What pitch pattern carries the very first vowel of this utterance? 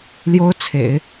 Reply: high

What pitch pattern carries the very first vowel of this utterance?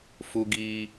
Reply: high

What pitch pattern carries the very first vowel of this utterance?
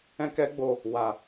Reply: high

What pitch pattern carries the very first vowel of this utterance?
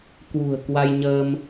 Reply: low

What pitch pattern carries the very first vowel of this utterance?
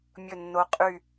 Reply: falling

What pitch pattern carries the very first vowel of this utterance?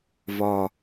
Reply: low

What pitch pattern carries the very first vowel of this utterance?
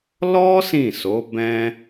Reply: high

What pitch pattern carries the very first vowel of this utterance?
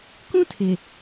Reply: high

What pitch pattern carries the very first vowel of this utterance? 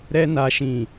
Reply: high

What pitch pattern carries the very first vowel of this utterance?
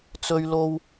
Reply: high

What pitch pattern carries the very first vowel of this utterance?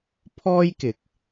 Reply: high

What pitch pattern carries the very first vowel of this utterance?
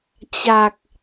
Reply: low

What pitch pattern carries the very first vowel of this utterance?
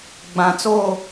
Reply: low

